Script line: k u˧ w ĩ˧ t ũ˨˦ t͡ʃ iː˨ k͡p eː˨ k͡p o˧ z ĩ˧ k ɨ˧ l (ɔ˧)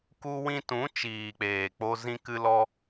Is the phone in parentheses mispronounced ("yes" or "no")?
no